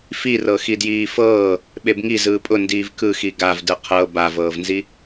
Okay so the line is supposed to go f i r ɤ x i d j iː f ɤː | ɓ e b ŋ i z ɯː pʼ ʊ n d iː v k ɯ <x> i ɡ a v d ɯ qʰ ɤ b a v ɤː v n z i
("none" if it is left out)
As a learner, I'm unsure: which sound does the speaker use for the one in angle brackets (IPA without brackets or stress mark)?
x